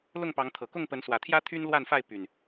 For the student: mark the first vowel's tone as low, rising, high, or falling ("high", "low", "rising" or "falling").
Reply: falling